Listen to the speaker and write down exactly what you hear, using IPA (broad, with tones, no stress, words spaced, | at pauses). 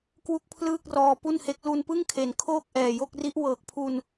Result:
kwu˥˩k̚pʰlɯː˥˩k̚rɔː˧ pu˥˩nhe˦˥k̚ lu˧npɯ˥˩ŋkʰe˩˦n kʰoː˥˩k̚ʔɛː˨˩jo˥˩k̚ri˦˥ʔ wɤː˨˩k̚pʰu˧n